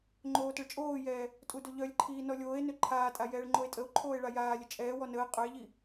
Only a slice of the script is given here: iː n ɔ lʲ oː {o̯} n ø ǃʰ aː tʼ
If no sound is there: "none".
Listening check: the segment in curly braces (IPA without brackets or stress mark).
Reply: e̯